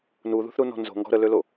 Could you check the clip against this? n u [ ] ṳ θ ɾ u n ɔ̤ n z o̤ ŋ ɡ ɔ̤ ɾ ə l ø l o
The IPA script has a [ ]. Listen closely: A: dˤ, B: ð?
B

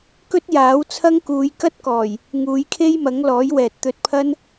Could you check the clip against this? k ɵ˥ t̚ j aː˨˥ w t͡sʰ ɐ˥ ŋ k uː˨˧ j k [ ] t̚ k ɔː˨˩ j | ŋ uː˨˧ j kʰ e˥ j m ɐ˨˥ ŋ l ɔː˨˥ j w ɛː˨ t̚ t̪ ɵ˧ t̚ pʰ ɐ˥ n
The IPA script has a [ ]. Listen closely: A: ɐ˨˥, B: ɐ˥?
B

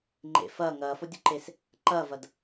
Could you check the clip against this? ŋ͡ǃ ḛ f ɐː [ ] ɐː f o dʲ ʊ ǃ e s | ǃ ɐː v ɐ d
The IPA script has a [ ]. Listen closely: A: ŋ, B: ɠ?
A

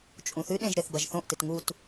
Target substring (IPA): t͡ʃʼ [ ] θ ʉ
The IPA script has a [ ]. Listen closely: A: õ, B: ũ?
B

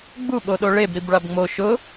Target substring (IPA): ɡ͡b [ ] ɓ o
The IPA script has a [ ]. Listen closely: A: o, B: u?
B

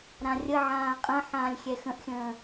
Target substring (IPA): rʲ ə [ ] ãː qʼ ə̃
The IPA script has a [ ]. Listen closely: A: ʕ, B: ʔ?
A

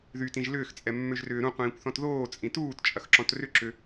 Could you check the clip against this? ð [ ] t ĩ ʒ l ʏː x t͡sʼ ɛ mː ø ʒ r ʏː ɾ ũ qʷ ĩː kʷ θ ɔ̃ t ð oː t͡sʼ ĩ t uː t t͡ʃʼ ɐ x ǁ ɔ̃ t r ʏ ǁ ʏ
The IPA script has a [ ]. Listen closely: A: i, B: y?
B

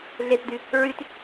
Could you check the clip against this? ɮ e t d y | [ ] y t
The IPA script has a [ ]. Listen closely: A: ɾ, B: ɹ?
B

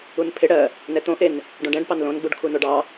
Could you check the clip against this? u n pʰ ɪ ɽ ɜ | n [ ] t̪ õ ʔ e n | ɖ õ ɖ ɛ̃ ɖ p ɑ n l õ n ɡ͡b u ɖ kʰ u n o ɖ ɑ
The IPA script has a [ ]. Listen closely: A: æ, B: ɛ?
B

